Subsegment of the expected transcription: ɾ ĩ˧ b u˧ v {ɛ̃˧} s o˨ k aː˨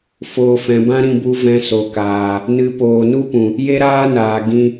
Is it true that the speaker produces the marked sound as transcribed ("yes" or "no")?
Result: yes